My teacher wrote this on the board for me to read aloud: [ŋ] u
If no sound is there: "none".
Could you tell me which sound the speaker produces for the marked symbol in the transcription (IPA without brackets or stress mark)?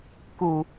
k